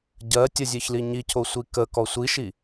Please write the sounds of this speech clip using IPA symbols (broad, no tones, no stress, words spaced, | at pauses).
ɟɜ tʲəzʲeçli ɲicʰosʷi kəkɔ sʷiʃi